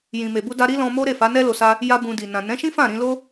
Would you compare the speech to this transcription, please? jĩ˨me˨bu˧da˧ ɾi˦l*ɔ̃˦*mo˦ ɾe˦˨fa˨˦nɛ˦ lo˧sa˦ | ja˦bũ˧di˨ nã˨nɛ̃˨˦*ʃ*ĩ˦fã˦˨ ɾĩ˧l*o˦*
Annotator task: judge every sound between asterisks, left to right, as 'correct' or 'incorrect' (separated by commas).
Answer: incorrect, correct, correct